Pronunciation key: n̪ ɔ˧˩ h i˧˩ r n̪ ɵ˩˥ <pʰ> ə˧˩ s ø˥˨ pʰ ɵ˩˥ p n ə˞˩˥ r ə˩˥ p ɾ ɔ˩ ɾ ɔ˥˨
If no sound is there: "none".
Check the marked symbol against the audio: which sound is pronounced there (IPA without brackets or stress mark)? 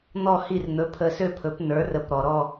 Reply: pʰ